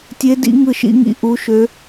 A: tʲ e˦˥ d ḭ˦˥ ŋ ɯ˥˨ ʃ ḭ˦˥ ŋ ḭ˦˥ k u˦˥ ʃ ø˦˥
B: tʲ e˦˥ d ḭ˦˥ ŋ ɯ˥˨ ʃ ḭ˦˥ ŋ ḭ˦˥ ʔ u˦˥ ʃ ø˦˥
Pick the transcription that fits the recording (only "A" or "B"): B